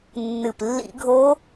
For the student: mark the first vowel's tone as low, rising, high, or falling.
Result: low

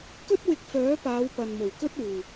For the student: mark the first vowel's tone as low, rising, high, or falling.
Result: high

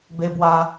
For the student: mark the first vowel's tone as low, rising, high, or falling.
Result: high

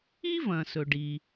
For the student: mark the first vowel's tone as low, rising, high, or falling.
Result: high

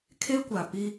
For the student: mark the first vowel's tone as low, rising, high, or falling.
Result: high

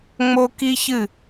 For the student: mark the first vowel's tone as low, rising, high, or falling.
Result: high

